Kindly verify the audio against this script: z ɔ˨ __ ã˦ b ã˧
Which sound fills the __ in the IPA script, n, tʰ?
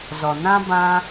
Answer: n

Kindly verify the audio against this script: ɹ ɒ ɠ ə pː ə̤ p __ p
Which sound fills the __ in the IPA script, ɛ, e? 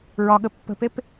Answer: e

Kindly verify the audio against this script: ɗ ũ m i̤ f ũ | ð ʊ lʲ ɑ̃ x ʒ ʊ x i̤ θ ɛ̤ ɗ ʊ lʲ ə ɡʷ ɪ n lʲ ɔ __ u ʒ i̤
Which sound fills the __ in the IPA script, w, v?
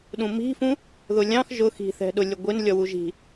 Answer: w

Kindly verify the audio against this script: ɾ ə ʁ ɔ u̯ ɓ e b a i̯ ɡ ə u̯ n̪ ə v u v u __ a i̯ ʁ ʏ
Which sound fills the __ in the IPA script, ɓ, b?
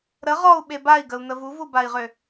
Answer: b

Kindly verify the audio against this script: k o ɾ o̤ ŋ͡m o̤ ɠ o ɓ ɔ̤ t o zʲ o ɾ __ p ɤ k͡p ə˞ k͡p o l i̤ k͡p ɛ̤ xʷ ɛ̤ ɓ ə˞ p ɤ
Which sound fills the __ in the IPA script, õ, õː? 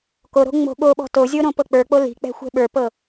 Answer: õ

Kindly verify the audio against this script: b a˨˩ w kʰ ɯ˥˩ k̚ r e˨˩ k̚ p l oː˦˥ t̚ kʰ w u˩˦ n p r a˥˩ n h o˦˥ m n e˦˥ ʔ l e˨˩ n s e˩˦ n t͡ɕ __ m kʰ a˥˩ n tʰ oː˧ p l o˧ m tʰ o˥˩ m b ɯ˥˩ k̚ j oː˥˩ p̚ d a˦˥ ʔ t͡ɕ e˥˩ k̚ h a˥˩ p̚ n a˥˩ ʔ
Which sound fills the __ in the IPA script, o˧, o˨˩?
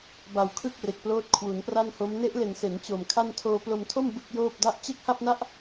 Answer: o˨˩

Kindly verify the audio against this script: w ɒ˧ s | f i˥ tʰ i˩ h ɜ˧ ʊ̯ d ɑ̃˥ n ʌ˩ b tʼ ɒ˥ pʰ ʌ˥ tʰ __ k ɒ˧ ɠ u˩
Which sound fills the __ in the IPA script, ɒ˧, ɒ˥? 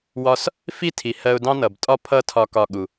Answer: ɒ˧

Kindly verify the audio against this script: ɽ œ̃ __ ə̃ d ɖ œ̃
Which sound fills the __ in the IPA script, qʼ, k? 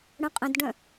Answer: qʼ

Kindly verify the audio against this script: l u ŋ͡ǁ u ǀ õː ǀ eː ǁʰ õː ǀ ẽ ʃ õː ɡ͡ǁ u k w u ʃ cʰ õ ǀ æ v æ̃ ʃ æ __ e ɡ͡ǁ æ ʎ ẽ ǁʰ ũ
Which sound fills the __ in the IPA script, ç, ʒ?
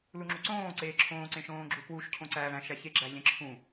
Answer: ç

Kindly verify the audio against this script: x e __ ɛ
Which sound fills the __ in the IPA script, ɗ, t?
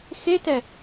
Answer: t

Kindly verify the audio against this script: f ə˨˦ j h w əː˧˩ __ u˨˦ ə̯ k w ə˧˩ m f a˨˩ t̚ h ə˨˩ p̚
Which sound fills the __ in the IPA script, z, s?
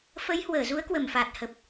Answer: z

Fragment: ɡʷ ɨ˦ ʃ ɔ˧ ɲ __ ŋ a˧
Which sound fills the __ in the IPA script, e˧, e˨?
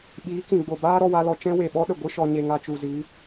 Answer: e˧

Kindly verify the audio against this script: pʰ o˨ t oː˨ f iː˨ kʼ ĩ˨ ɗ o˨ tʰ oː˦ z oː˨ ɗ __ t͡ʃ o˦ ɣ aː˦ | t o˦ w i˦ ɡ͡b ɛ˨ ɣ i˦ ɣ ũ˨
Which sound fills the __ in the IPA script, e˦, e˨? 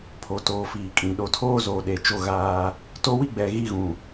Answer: e˨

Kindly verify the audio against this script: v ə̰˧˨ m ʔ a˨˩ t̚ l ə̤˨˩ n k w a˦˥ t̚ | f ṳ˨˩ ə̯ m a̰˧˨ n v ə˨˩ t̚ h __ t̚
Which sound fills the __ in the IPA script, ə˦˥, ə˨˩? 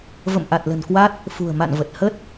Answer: ə˦˥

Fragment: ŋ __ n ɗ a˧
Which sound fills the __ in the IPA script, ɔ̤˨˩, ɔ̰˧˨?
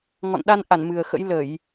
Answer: ɔ̰˧˨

